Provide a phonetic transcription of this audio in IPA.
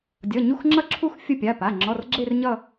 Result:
dʲ ʌ˩˧˩ ɲ u˦˨ x ŋ͡ǁ ʌ˦˨ ǁʰ u˦˨ x fʲ ə˦˨ pʲ a˩˧˩ p a˩˧˩ ŋ͡ǁ ɔ˩˧˩ r ɡ͡ǁ e˦˨ r ɲ ʌ˦˨

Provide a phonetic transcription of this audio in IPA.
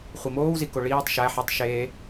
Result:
χʷ i m oː w z i k o ɭ iː tˤ ʃ æ ħ e tˤ ʃ e

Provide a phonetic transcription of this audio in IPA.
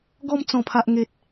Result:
ɡ ɔ˧ m t͡s ɔ̃˨˩ pʰ a˨ ʔ ŋ e˨ t̚

